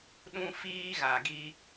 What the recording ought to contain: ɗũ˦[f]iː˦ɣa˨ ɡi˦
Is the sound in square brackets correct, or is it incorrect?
correct